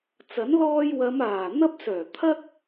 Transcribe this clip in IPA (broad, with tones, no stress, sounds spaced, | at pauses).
t͡s ɐ˨˥ n l ɔː˧ j w ɐ˨˧ m aː˨˩ n̪ ɐ˧ p̚ s œː˨˩ t̪ʰ ɐ˥ k̚